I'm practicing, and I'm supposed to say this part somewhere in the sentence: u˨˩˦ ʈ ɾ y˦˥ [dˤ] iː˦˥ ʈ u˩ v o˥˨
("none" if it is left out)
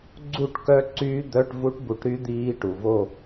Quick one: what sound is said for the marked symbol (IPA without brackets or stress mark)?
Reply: d̪